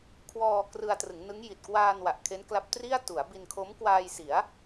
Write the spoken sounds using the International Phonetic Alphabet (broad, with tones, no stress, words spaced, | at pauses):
kʰwɔː˧ krɯ˧a̯trɯ˩˦ŋnɯ˦˥ŋji˨˩t̚ kwaː˧n wa˨˩ʔ kʰe˦˥nkla˦˥p̚tri˥˩a̯ tu˩˦a̯bi˧nkʰo˦˥m kwaː˧jsi˩˦a̯